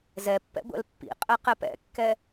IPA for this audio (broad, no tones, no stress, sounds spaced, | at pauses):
z ɛ pː ɛ̰ ɡʷ ɛ̰ l pː ḭ qʼ ɛ q ɛ p ɛ̰ kː ɛ